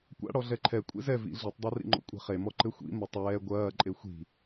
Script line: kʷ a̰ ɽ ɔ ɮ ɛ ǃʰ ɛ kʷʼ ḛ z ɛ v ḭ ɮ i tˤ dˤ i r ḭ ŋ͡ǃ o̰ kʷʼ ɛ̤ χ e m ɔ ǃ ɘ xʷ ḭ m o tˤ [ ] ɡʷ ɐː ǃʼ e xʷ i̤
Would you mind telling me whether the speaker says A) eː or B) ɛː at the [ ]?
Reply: B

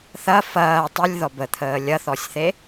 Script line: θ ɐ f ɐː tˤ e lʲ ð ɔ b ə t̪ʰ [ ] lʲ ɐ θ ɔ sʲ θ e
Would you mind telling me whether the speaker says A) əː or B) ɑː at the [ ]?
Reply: A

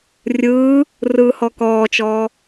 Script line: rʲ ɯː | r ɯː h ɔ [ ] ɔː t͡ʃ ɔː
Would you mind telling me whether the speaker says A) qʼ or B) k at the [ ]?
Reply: B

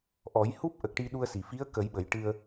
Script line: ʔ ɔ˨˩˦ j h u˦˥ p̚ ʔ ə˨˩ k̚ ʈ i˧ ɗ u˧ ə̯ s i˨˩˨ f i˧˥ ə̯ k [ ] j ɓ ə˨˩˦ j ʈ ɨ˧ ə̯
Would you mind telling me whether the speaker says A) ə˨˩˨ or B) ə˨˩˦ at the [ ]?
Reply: B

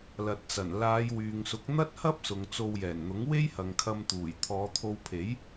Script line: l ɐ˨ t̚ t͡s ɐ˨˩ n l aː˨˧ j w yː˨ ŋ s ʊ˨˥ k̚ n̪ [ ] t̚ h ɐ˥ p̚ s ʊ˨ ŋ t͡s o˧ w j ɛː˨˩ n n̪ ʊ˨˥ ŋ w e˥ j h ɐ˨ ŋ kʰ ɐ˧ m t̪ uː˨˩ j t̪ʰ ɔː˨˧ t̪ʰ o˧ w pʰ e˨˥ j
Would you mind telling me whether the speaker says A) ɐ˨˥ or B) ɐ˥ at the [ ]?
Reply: B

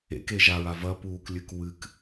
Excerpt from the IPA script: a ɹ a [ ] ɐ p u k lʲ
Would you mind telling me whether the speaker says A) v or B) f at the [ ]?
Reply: A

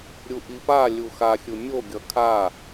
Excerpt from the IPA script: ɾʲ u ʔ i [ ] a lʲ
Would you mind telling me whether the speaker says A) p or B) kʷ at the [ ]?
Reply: A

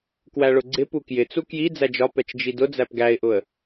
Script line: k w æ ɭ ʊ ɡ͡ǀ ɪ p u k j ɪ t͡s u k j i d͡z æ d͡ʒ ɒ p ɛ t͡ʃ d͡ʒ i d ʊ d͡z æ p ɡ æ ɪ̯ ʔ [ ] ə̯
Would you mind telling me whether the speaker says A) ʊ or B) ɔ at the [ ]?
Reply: A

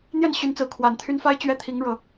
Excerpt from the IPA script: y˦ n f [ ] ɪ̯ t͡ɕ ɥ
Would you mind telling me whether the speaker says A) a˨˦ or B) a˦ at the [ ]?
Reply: B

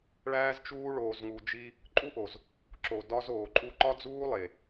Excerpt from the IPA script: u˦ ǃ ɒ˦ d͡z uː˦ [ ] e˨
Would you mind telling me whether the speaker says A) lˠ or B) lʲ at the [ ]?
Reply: A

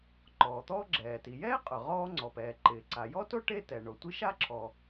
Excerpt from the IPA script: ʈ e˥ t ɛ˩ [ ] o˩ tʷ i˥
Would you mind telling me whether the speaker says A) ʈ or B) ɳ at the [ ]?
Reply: B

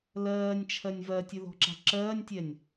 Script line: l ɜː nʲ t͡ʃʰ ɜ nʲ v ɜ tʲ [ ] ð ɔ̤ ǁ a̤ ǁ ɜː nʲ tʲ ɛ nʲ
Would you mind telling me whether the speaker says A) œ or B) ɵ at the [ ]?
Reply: B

